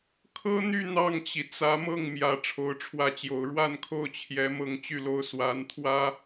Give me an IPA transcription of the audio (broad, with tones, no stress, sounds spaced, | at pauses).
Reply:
kʰ ɤ˥ n̪ y˥˧ n̪ ɑ˥˩ ŋ t͡ɕ i˩ t͡s ä˧˥ m ɤ˥˩ ŋ m j ä˧˥ ʈ͡ʂʰ o˧˥ ʊ̯ ʈ͡ʂʰ w ä˥˩ t͡ɕ j o˧˥ ʊ̯ ɻ w a˥˧ n kʰ o˥˩ ʊ̯ t͡ɕʰ j ɛ˧˥ m ɤ˥˧ ŋ t͡ɕ y˥˧ l o˥˩ ʊ̯ s w a˧˥ n t̪ʰ w ä˥